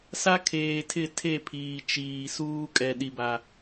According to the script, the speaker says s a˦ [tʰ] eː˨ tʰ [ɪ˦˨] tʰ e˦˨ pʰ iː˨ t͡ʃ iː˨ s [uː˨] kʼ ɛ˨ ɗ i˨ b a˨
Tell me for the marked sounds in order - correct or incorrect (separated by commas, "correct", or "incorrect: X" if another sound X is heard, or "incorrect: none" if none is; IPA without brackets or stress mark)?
incorrect: kʰ, correct, incorrect: uː˦